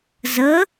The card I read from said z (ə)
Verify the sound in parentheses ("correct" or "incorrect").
correct